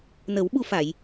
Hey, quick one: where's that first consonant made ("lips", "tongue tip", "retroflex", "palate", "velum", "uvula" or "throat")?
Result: tongue tip